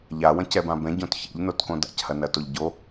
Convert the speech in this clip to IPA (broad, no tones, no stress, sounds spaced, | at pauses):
ʎ a w ɐ̃ c ɛ b ã b ɛ̃ ɟ õ t ç ḛ ʎ n o t k õ d a̰ c h ɐ n ɐ t o ʎ ɟ o